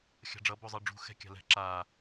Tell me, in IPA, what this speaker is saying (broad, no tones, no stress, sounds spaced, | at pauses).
xʲ a̤ ɖ͡ʐ ʌ b o zˤ ɯ ɖ͡ʐ ṳ x ɛ̤ kʲ a̤ l ɛ̤ ǁ a